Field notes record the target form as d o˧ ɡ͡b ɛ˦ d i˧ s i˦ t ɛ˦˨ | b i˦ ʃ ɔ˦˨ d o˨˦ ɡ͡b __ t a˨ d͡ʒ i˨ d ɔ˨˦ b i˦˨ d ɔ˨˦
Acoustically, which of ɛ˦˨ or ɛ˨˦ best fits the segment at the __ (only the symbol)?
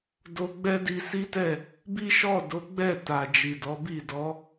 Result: ɛ˦˨